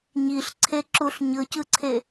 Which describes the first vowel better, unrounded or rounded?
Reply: unrounded